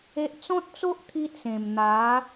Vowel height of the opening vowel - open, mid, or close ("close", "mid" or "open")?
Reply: mid